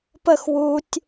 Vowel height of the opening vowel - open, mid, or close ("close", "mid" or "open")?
mid